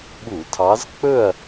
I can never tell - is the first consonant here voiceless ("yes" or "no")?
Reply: no